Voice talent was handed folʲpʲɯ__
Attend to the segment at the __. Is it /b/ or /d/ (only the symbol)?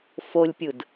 d